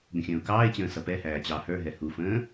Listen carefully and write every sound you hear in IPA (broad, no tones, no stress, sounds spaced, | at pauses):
ɡ ə̃ xʲ ə̃ː ʊ̯ k ɑː ɪ̯ t͡ɕ ə̃ː s ʌ p ɛ h æː t͡ɕ ɑ h ə˞ ɦ ɛ h u f ə̃ː